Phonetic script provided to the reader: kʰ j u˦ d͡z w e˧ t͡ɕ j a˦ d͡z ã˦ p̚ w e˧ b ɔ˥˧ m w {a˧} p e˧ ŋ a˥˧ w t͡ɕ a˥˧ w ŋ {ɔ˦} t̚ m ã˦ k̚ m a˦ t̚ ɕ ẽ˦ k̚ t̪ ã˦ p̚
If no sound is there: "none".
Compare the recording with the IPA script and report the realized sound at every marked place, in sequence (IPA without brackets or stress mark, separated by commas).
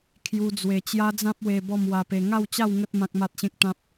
a˧, ə˦